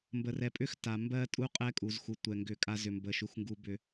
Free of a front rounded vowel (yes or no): no